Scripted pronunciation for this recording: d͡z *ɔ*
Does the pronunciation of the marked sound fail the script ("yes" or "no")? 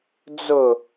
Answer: yes